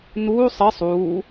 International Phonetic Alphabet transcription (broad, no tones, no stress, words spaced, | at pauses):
nuːsˤ ɘsˤ uː